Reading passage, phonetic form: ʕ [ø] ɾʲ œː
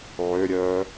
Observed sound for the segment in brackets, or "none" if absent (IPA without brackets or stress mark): ø